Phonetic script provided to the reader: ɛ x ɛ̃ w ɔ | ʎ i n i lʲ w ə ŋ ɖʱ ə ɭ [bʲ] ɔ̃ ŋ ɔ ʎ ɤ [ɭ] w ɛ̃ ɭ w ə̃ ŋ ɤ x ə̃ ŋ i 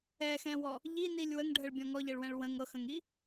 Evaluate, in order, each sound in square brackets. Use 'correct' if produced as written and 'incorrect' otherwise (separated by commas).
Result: correct, correct